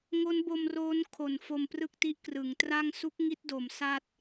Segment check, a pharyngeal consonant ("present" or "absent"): absent